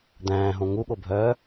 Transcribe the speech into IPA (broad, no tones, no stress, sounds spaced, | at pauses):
d̪ æ̃ː ɦ õ ŋ u ɠ o bʱ œː